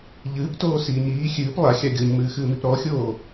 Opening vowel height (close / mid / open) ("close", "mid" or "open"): close